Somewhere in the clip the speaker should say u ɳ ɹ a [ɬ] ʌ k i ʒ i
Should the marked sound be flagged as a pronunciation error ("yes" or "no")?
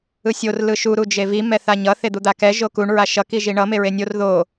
yes